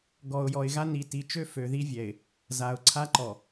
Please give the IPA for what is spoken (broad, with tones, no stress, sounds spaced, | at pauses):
ɡ ɔ˨ ʊ̯ j ɔ˨ ɪ̯ ɣ a˦ n i˨ t i˨ t͡ʃ ø˦ f ø˨ ð i˦ vʲ ɛ˨ ɪ̯ | z a˨ ʊ̯ ǀʰ a˦ ǃ ɔ˨